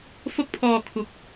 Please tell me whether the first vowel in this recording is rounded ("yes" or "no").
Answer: yes